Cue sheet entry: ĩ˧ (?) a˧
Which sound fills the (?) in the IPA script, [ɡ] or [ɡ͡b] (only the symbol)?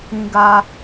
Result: ɡ